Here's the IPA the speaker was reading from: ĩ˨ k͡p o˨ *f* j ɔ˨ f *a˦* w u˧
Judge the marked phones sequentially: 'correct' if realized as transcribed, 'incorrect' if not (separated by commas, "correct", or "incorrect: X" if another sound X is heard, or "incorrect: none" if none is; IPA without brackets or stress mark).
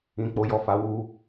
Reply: incorrect: none, incorrect: a˨˦